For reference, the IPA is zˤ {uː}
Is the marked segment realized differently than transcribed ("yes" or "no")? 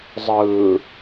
yes